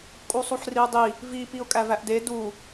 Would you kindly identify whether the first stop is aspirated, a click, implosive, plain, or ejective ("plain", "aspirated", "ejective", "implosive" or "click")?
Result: ejective